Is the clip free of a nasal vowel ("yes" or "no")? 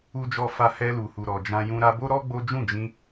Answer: no